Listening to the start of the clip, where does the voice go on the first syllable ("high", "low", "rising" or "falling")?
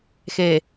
low